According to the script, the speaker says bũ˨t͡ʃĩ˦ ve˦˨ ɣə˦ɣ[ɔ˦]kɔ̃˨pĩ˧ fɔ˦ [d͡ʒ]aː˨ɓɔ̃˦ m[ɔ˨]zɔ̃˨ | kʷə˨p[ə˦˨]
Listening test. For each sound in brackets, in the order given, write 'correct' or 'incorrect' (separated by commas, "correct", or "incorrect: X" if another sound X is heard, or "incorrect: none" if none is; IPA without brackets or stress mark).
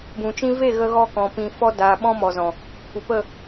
correct, incorrect: d, correct, correct